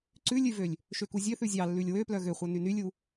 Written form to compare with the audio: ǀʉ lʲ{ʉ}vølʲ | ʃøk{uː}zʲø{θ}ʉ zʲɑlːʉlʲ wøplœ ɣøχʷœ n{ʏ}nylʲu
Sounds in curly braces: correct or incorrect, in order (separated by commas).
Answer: correct, incorrect, correct, incorrect